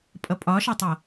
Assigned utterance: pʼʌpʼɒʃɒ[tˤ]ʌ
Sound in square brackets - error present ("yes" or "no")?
no